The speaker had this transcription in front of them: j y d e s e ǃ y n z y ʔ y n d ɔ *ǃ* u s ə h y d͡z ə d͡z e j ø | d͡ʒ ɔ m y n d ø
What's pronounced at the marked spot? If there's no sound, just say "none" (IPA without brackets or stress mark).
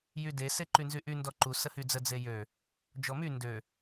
ǃ